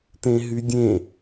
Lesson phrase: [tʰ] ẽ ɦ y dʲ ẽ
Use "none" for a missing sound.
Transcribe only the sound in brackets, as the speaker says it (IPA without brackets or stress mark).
t